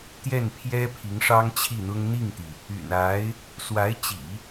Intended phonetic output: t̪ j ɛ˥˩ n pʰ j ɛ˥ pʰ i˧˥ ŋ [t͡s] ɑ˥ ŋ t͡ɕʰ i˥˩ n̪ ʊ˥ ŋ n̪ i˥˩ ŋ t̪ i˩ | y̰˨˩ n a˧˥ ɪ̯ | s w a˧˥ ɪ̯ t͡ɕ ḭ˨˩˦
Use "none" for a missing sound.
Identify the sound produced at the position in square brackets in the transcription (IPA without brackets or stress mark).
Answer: ʂ